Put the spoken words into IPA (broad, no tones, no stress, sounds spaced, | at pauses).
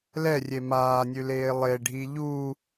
l ɛ rʲ e m aː nʲ ʉ l eː lˠ e ɖʱ i ʎ u